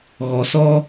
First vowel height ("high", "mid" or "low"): mid